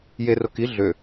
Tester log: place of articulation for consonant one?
palatal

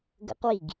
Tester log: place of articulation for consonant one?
velar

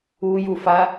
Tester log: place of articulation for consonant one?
palatal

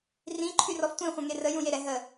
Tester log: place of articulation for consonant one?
alveolar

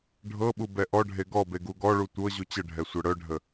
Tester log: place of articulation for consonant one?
retroflex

